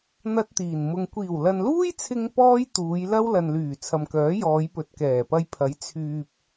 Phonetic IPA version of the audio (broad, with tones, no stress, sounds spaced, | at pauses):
n̪ ɐ˥ t̚ t̪ iː˨˩ n m ʊ˧ ŋ kʷ iː˨˩ w l ɐ˨ n l uː˥ j t͡sʰ ɪ˧ ŋ p ɔː˥ j t̪ uː˨˧ j l ɐ˥ w l ɐ˨ n l yː˨˩ t͡sʰ ɐ˨ m k œː˨˥ j ɔː˨˧ j p ɵ˨ t̚ k ɛː˨˩ p ɐ˧ j pʰ ɐ˨˥ j t͡sʰ yː˨ p̚